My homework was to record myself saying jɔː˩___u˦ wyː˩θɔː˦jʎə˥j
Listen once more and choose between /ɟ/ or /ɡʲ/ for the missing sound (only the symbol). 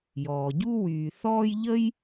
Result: ɟ